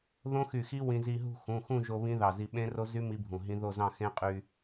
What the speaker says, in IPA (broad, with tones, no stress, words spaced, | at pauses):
ðõ˦˥xy˧˩xi˦˥ wĩ˧zi˧ɦṳ˥˧ xũ˩˧˩xũ˥˧ʒo˧ βĩ˦˥ðɑ˧˩zi˧ ɓẽ˦˥ro˦˥zy˦˥ mi˦˥bʱũ˧˩ɦĩ˦˥ ðo˥˧zɑ̃˥˧ xẽ˦˥qʼy˧